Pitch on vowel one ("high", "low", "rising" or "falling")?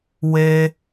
high